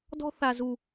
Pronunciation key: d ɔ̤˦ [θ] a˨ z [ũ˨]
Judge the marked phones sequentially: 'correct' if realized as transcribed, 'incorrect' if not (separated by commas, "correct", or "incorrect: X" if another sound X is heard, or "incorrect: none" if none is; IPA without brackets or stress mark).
correct, incorrect: u˨